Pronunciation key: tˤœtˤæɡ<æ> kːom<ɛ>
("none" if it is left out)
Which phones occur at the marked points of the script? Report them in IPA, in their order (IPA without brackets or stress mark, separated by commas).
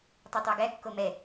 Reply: æ, ɛ